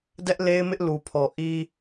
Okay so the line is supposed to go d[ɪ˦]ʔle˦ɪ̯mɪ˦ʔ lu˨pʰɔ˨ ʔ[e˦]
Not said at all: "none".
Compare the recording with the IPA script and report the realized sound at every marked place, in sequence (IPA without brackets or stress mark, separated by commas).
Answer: ɛ˦, i˦